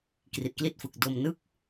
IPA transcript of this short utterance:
k r i˨˩ t̚ k l i˥˩ t̚ f ɯ˨˩ k̚ d o˧ m n ɯ˥˩ k̚

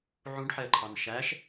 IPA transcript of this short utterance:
ʕ ũ ɖ ħ ɛ ə̯ ǃʰ ɑ n ʃ æ ʃ

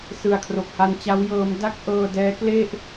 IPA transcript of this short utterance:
s ɯ˨˩ a̯ kʰ r o˨˩ k̚ h a˧ n t͡ɕ a˦˥ w j ɤː˦˥ m d a˥˩ k̚ ʔ ɤː˧ d ɛː˦˥ k l e˥˩ ʔ

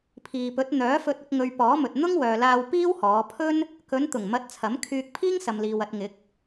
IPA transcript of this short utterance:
pʰ iː˨ p ɵ˨˥ t̚ n̪ œː˨˥ f ɵ˧ t̚ ʊ˧ k̚ ŋ ɵ˨ ɥ p ɔː˨˥ m ɵ˨ t̚ n̪ ʊ˥ ŋ w œː˨ l aː˧ w p iː˥ w h ɔː˨˧ pʰ ɵ˥ n | k ɵ˨˧ n t̪ ʊ˨˩ ŋ m ɐ˨˥ t̚ t͡sʰ ɐ˨˥ m kʰ yː˧ k̚ pʰ iː˥ ŋ s ɐ˨ m l iː˨ w ɐ˧ t̚ ŋ ɪ˨˥ k̚

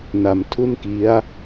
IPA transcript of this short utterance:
n a˩˦ m tʰ u˥˩ n k i˦˥ a̯

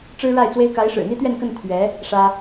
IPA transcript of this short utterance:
ʈ͡ʂ ɻ̩˥ ɻ a˥˩ ɪ̯ t͡s w e˥ ɪ̯ k a˧˥ ɪ̯ ʂ ɻ̩˨˩ n̪ i˥ t̪ ɥ ɛ˥˧ n k ə˥˩ n t̪ʰ ɥ ɛ˧˥ | ʂ ä˥

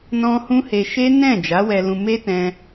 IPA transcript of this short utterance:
n ɔ̃˧ h ũ˦ h e˧ ʃ e˦ n ɛ̃˦˨ d͡ʒ a˨˦ w ɛ˧ l ũ˧ m e˦ t ɛ̃˧

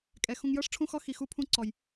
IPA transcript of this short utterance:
kʼ ɛ˨ x ũ˨ ŋ j ɤ˦ ʂ ʈ͡ʂʰ ũ˦ x ɔ˦ x i˨ x u˦ pʰ ũ˦ ǀ ɔ˨ j

